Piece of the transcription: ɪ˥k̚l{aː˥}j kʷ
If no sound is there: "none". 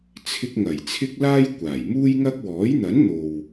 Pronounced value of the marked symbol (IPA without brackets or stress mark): aː˥